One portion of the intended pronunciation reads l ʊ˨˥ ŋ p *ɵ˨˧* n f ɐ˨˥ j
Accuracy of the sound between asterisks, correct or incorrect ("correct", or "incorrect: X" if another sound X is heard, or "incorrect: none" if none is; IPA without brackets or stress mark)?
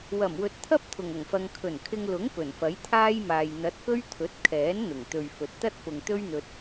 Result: incorrect: ɵ˨˩